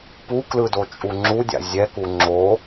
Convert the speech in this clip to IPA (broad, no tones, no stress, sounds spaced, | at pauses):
p u k l ɯ d o t͡ʃʼ u ŋ͡ǁ u dʲ a̰ zʲ ɛ k u ŋ͡ǁ o